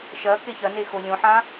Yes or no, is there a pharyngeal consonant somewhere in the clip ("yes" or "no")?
yes